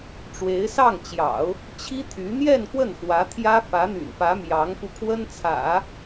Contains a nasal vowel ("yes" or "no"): no